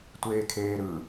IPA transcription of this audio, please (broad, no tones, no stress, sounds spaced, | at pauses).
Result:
tʷ eː kʰ eː ɾ ɯ